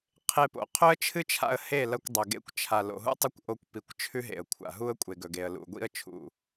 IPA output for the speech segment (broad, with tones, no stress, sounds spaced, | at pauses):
qʰ e˧ p o̰˨ qʰ ɵ˦ ə̯ t͡ʃʰ ɨ˦ t͡ʃʰ a̰˧ ə̯ h e˦˨ l ɐ˧ kʷ dˤ ɵ˨ ɡ ḛ˧ kʷ t͡ʃʰ a˨ l o̰˨ ɦ ṵ˦ tˤ ɐ˦ kʷ ʔ o˧ kʷ p i˨ kʷ t͡ʃʰ ʉ˦ ɦ ḛ˨ ə̯ kʷʰ a̰˨ ɦ u˦ ə̯ kʷʼ e˨ ɡ ɵ˨ ɡ e˨ ə̯ l ṵ˨ ɡʷ ḭ˦ ə̯ t͡ʃʰ ṵ˨